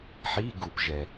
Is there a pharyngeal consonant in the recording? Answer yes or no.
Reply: yes